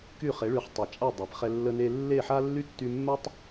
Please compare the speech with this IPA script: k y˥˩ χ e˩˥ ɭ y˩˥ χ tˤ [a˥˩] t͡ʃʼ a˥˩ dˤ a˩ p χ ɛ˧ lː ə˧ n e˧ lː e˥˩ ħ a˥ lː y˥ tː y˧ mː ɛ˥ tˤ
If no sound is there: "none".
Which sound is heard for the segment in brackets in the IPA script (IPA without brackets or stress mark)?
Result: a˩